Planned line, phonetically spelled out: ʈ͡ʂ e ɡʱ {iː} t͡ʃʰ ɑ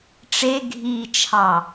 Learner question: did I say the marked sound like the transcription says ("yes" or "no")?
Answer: yes